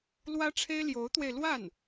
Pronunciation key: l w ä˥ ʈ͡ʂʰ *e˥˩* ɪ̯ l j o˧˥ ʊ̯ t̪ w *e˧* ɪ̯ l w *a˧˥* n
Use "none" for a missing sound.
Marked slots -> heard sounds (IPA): e˥, e˧, a˥˩

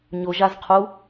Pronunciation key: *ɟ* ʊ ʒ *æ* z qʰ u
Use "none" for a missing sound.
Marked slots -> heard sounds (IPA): ɲ, a

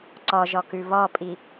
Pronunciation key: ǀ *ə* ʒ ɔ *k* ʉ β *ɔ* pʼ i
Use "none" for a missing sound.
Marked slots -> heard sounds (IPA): ɔ, k, ɔ

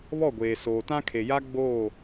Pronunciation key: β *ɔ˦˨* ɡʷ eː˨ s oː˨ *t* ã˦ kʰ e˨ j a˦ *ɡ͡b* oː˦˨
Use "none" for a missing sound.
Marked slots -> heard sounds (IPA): ɔ˦˨, t, ɡ͡b

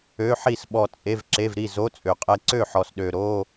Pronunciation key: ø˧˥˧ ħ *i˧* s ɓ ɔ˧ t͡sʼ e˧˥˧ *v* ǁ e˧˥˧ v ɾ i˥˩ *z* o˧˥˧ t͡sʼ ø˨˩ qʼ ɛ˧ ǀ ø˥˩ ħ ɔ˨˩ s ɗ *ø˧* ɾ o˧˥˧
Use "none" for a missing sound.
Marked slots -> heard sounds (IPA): i˥˩, v, z, ø˨˩

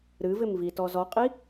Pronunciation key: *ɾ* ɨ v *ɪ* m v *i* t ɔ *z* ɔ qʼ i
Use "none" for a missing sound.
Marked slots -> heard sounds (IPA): ɾ, ɪ, i, z

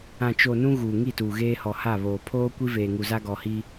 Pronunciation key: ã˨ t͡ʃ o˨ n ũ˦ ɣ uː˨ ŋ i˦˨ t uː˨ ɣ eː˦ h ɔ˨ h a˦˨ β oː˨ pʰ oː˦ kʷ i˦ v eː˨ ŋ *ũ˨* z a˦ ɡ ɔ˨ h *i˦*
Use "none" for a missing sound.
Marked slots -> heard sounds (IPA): u˨, i˦

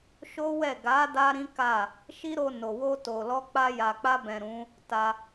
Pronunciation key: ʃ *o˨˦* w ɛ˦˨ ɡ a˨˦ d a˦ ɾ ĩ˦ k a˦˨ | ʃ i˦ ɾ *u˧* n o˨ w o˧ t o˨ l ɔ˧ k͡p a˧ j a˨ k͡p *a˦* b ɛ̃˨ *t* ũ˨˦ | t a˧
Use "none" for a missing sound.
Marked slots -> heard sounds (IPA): o˦, o˧, a˧, ɾ

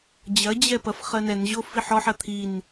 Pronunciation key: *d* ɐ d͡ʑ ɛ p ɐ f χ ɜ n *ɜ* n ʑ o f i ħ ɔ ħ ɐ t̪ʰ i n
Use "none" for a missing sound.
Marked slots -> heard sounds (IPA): d͡ʑ, ɛ

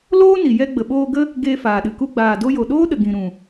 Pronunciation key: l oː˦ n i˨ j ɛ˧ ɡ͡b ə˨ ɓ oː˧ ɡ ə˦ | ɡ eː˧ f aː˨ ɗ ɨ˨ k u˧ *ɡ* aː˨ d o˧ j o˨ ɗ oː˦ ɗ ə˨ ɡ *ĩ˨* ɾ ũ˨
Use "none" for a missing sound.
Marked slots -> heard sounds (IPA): ɡ͡b, ĩ˨

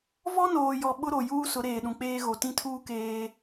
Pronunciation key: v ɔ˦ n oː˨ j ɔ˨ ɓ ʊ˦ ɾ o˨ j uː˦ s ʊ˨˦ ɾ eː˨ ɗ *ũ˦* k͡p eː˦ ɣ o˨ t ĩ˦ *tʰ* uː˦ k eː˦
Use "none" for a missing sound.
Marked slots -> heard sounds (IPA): ũ˨, tʰ

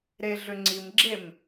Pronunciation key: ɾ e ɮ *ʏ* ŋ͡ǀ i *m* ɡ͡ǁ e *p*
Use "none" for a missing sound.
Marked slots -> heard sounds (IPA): ʏ, m, m

